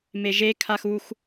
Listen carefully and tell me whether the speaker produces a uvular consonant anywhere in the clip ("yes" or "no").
no